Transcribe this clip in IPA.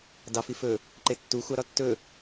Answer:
dɑfi fɵ | ǃetːu xʷɑɾɒtːɵ

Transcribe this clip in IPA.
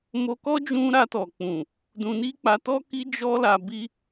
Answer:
mo˧kɔ˦d͡ʒũ˧ ɾa˧tɔ˨k͡pũ˨ | dũ˧ni˦k͡pa˧ tɔ˦ ki˧ d͡ʒɔ˦la˧ bi˧

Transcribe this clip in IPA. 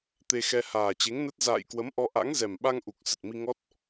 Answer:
t̪e˧xɛ˧ haː˨˩ t͡ɕe˨˦ŋnə˦˥t̚ za̰ː˧˨j kwə˨˦mʔɔ˧ ʔa̰˧˥ŋzɛ˨˩mɓa˧ŋʔu˨˩k̚ sə˨˩t̚mi˧ ŋɔ˦˥t̚

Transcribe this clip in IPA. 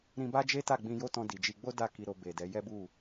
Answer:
ɾĩ˧ba˦d͡ʒe˦ ta˦˨ɡ͡bĩ˧jo˦tɔ̃˧ di˨d͡ʒi˧ ɡ͡bo˦da˦˨ ki˧ɾo˧ be˨ dɛ˨˦ jɛ˦bu˦˨

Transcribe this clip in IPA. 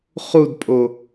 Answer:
χudpʼo

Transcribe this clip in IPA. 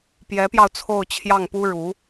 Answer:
pjɛ˧˥pjɑ˧ʊ̯ t͡sʰo˥˧ʊ̯t͡ɕʰjɑ˥˩ŋpu˥ ɻu˧˥

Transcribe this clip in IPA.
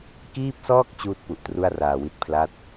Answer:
kiː˥˩p̚sɔː˥˩k̚ t͡ɕuː˥˩t̚ pu˨˩ʔtru˥˩a̯raː˨˩wi˦˥t̚ pʰla˦˥t̚

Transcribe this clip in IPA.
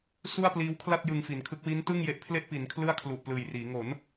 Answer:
su˥˩a̯pliː˦˥wkʰla˥˩t̚ jɯ˧ŋfi˩˦nkʰɯ˦˥k̚ wi˦˥ntɯ˥˩ŋje˦˥ʔpʰle˥˩ʔ pi˩˦nkʰlɯ˥˩a̯kʰlu˨˩ʔ plɯː˨˩jriː˩˦ ŋo˩˦n

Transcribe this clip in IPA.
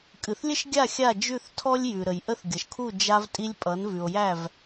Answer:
kʼɨ˩θlʲə˥ʃɡʲa˥˩ xʲa˥˩d͡ʒʉ˥˩θtʰɔ˥lʲjʉ˩ ɾə˩jʔə˥θɡʲʌ˩ʃkʰu˥˩ d͡ʒa˧vtʼi˧lʲ pʼʌ˩˥n vʉ˩o̯jæ˥˩v

